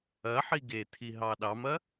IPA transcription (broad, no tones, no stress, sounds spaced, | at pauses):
ɐ ħ i ɡ e t̪ʰ i ɦ ɑ ɗ ɑ m ɐ